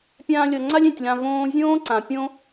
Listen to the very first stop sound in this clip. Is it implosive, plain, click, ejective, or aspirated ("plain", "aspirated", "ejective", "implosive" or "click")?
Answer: plain